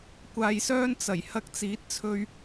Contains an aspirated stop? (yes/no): yes